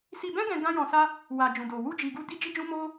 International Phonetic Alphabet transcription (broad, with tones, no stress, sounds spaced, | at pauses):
s i˧ b ɛ̃˦ ɡ ɛ̃˧ ɡ ã˦ j ɔ̃˧ s a˦ | w a˨ d͡ʒ ũ˨ d o˨ w u˧ d͡ʒ i˨ ɡ u˧ d i˦ d͡ʒ i˦ d͡ʒ ũ˦ m o˦